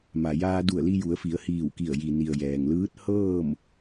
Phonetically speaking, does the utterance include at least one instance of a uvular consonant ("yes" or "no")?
no